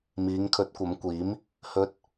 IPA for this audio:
miː˨˧ŋkʰɵ˨˥t̚kʷɐ˨˧mkʷiː˨˥m | hɵ˧t̚

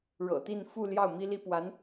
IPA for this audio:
ɻɤ̰˨˩t̪i˥˧n fu˥˧ ljɑ˥˩ʊ̯mi˥li˥ pwa˧˥n

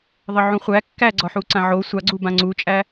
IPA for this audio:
ðˤəʕũχʷæ kːæɡ͡ǀɒħu ǀãʕo sʷaɡ͡ǀu bãŋ͡ǀut͡ʃʼæ

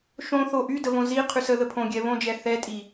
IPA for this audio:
ʃõθo ʔydəvõ ziqʰys əðə pʰõɡʲɛ βõd͡ʒɛ θɛtʼi

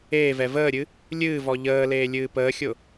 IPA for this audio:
eːvɛ vəːɾʲɨ | lʲɨːvɔ ʎəːleː lʲɨːpəːxʲʊ

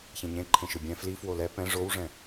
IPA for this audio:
çẽɲẽ ǃʰẽʃɯbʲɛ̃ fli fwolɛ pɛ̃ ʐowʐɛ̃

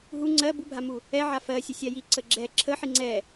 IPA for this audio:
ɦu ŋ͡ǀɜ bubʱamu | ɛʕa fɜsʲə sʲaji ǀəɡ͡ǁɛ ǁʰə ħiŋ͡ǀɛ

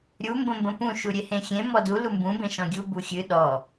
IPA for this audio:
ɾʲu mbə̃mbə̃pũ ʃuɾʲehẽxʲẽ mɔdu lumbũ bẽʃɔ̃ɡʲu buxʲɨ ɗɔ

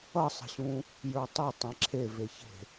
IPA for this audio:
ʌsˤə̤ɕũ | jə˞tˤe tˤẽǁʰeveçe̤

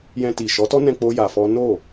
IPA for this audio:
jɛ̃˧ti˨ ʃɔ˨˦tɔ˦nɛ̃˧ k͡po˦ja˧fɔ˦ no˦˨

